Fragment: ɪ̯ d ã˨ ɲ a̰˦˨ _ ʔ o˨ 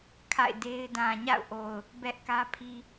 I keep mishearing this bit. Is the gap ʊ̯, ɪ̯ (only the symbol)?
ʊ̯